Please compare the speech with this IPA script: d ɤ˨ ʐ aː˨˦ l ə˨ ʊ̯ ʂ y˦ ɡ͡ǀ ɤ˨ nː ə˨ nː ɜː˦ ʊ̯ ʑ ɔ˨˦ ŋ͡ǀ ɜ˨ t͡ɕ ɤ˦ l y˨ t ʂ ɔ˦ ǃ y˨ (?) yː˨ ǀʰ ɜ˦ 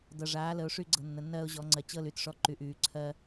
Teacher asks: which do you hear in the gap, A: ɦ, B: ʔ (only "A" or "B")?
B